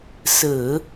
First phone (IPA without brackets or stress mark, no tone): s